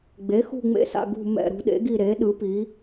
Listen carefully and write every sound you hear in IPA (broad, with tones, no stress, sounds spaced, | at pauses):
ɡ͡b e˩˥ x ṳ˦˨ ŋ͡m ḛ˦˨ s a̰˦˨ ɡ ṳ˦˨ m ɛ̰˦˨ ɾ ṳ˩˥ ɗ ḛ˩˥ ɡ i˦˨ ɾ e˩˥ ɗ ɯ˩˥ p i˩˥